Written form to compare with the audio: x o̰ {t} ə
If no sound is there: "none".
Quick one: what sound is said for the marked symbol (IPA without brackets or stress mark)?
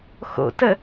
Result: t